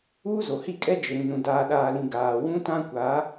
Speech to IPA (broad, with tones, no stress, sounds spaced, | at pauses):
uː˦ z o˨ h i˦˨ kʼ ɛ˦ d͡ʒ ɪ˨ ɾ ĩ˨ n ũ˨ d aː˨ ɗ aː˨ l ĩ˨ ɡ aː˨ w ũ˦ t ã˦ kʷ a˨˦